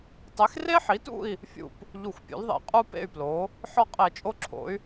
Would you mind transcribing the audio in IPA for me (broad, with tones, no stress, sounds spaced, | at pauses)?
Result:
tˤ e˩˥ x r e˥ ħ i˩˥ t ṵ˥˨ i̯ | fʲ ṵ˥˨ p | ʎ u˧˩˧ xʷ pʲ ṵ˩˥ l ðˤ ḛ˧˩˧ qʼ u˥ p ḛ˥˨ y̯ p l o˩˥ | ħ ɒ˥˨ qʼ e˧˩˧ t͡ʃʼ o˥ ǁʰ o̰˩˥ y̯